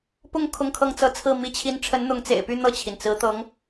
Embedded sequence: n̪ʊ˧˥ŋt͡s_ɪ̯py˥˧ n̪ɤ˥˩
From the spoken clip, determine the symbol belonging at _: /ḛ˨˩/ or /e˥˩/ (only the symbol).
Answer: ḛ˨˩